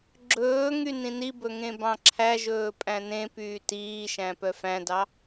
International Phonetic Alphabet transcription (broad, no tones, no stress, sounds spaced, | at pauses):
ɡ͡ǁ ɵː ŋ y n ĩ n i b ɵ ŋ ẽ b ɑ̃ ǁʰ æ ʒ ɵː pʼ æ̃ n ẽ p yː t iː ʃ æ̃ p œ f æ̃ d ɑ